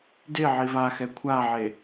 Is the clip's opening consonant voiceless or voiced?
voiced